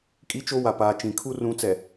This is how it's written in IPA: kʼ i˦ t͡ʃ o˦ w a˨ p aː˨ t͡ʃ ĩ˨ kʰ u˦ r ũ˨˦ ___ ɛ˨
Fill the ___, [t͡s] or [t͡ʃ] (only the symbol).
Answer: t͡s